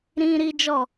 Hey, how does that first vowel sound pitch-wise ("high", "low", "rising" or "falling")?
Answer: high